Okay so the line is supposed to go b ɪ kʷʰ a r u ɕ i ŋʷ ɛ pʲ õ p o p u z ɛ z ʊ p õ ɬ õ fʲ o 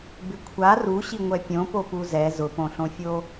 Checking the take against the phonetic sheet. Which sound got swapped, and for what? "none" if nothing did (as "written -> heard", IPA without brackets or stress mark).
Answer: none